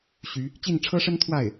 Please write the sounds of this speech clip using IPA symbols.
ɕ y˧˥ | t͡ɕ i˥˩ n ʈ͡ʂʰ ɤ˥ ʂ ə˥ n t̪ʰ w a˥˩ ɪ̯

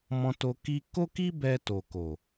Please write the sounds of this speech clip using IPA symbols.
m ɔ̃˧ t o˧ k i˦ k o˦ k i˦ b ɛ˧ t o˨ k o˨

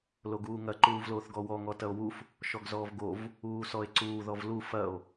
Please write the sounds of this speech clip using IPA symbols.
l o ɡ uː ŋ ɐ ǃ uː v l oː θ ɡ ɔ w ɔ ŋ ɔ t ɐ o̯ w u f | ʃ ɔ ɡ z ɔː v ɡ o v | uː s ɔ e̯ ǀ uː ð ɔ v l u f ɐ o̯

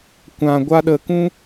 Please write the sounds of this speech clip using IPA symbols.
kʷ ã˧ ɡʷ a˦ ɗ ə˧ k ũ˦

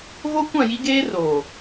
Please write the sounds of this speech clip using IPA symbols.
ɣ o˦ kʷ ã˦˨ j i˦ ɡ eː˦ r oː˨

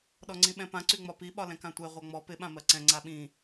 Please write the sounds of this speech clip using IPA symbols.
ɗ ɔ ŋ͡ǀ ĩ ɓ ɛ̃ p ã ǀ y ŋ͡m ɒ p i ɓ ɒ l ɛ̃ k ã tʷ ɛ ʁʷ a ŋ͡m ɔ p ɪ ɓ ã m ɜ ǀ ɛ̃ ŋ͡ǀ a ɓ ĩ

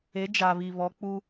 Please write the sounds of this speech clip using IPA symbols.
e˨˦ d͡ʒ a˨ β i˨ β ɔ˨˦ k͡p u˦

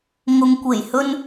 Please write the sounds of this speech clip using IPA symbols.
ŋ ʊ˨ ŋ kʷ e˨˩ j h ɵ˧ n

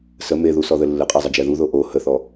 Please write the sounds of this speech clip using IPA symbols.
s ə m e ð u s ɔ ð ə lː ə qʼ e zˤ ə d͡ʒ ɛ ð u ð o ʔ o h ə θ ɔ

